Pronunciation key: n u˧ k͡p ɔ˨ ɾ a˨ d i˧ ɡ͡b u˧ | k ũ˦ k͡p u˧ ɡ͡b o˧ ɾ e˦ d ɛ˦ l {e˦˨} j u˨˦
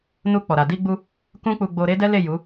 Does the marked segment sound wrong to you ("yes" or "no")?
no